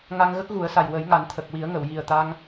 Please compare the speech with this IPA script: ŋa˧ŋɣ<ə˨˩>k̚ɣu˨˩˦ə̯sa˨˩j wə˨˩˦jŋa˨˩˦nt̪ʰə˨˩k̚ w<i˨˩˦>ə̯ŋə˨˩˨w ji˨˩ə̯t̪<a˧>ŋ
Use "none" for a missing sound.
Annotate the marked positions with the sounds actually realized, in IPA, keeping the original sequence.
ə˦˥, i˨˩˦, a˧

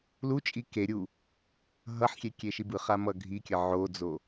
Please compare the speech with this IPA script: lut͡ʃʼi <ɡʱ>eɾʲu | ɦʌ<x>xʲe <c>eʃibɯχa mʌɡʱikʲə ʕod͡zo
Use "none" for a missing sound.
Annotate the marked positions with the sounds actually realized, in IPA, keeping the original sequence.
k, ħ, kʲ

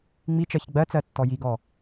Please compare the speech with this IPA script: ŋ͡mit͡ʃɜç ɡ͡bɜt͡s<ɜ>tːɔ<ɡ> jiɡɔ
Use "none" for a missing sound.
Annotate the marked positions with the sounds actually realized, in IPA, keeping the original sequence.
ɜ, none

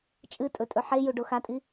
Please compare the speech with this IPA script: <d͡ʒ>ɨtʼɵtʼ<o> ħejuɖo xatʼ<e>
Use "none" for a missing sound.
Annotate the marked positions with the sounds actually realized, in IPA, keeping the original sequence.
t͡ʃʼ, ɵ, i

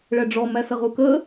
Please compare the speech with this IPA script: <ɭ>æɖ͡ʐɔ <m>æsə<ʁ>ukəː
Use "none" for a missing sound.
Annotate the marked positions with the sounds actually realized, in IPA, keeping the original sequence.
ɭ, m, ʁ

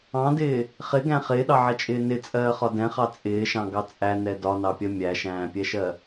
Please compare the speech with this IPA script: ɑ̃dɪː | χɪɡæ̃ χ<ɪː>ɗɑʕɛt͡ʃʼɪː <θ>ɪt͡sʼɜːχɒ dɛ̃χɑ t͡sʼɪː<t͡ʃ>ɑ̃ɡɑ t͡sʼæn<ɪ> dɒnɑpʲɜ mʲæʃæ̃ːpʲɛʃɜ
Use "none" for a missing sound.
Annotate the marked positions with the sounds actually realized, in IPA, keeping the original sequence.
ɪː, n, ʃ, ɛ

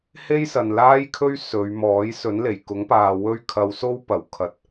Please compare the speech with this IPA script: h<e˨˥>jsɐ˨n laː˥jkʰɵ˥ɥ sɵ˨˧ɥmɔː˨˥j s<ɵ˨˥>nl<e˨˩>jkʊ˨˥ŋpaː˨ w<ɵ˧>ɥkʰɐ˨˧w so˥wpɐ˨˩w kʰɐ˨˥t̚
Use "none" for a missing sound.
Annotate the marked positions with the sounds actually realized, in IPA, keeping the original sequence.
e˥, ɵ˨˥, e˨˩, ɵ˧

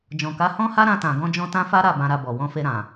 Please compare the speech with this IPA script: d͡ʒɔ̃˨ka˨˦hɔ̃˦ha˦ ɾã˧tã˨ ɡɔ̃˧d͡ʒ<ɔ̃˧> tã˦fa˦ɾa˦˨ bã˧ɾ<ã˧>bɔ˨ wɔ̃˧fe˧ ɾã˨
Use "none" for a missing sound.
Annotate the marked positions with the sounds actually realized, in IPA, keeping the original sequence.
ɔ̃˧, a˧

